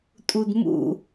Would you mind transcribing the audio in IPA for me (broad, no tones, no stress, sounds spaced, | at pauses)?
tʼ u d m ṵ